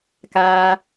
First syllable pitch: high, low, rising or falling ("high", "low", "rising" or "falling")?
low